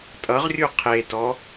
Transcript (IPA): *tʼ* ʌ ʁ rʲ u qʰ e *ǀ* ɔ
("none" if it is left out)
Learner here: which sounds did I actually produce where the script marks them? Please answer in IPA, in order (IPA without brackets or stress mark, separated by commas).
tʼ, t